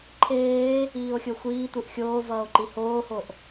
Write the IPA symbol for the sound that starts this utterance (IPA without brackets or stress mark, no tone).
ǃʰ